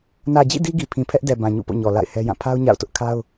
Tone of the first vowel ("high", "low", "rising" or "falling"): low